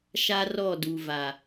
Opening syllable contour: high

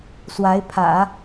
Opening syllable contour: rising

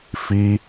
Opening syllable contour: high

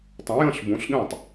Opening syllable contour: rising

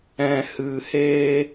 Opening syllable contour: low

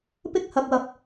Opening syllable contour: high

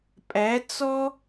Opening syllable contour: rising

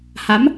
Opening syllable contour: rising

